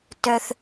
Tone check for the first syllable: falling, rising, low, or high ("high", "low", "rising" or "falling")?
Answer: high